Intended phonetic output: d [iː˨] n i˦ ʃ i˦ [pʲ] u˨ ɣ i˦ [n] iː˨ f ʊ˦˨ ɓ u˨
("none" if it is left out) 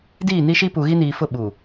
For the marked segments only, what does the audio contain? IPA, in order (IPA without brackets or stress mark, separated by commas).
iː˦˨, p, n